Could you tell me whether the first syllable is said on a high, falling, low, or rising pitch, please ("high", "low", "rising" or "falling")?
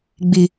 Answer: low